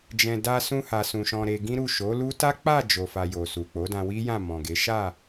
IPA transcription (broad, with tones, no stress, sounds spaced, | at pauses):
d͡ʒ ɛ̃˧ d a˧ s ũ˧ h a˨ s ũ˨ ʃ ɔ̃˧ ɾ e˧ ɡ ĩ˦ ɾ u˦˨ ʃ o˨˦ l u˦ t a˦ k͡p a˦˨ d͡ʒ o˨ f a˨ j o˨ s u˨ k͡p o˨˦ d ã˧ w i˦ j ã˦˨ m ɔ̃˨ ɡ e˨˦ ʃ a˦˨